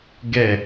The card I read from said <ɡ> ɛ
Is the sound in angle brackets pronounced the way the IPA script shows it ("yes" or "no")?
yes